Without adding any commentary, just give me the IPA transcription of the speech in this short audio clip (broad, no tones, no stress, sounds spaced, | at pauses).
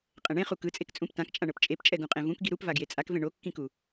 qʼ ɛ̃ ɳ ẽ χ u k ɯ t͡sʼ e k t͡sʼ ũ p t ã k t͡ʃʼ ã ɳ ɤ p t͡ʃʼ e p t͡ʃʼ ɛ ɡ ũ qʼ ẽ v ũ k ɡ i ɾ u p v a ɡ j e t͡sʼ a k v ẽ ɳ o kː ĩ k u